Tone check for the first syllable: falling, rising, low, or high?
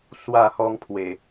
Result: falling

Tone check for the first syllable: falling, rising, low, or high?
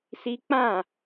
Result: high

